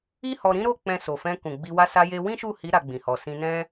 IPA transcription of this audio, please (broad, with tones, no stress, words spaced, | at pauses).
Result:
i˦hɔ˧ɾĩ˦ ɾo˦˨ k͡pɛ̃˧so˨fɛ̃˧ kũ˨ɡ͡bi˧ wa˧sa˧je˧ wĩ˦ʃu˦˨hi˨˦ ɾa˧ɡ͡bĩ˨hɔ˨ sĩ˧nɛ̃˦